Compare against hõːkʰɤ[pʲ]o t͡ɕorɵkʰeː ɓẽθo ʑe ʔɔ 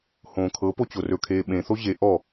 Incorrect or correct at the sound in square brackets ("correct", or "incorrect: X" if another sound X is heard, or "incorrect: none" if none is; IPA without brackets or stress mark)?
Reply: incorrect: p